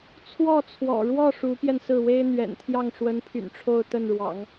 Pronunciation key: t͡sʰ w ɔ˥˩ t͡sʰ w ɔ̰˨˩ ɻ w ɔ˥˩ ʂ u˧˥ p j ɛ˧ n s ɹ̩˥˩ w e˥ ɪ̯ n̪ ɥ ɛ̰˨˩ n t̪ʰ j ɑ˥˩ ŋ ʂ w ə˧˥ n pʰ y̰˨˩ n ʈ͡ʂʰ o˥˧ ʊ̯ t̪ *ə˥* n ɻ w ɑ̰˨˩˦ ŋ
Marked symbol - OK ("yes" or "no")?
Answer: no